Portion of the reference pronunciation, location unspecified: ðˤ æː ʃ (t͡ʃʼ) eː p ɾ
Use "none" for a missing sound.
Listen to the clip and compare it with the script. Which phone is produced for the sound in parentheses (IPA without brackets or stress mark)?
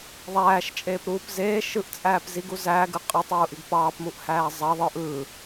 t͡ʃʼ